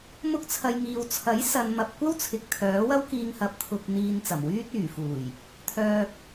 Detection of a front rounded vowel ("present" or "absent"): present